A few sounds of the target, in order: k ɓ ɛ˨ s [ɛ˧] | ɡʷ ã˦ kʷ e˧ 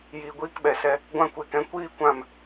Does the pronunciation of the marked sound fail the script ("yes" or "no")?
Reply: no